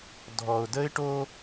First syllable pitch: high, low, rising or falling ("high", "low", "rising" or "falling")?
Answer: low